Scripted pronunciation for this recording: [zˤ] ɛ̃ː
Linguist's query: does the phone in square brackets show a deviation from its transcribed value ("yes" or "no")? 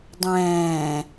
yes